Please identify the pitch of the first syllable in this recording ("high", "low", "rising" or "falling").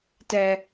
low